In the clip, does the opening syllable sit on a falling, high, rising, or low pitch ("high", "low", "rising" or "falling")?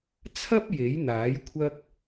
high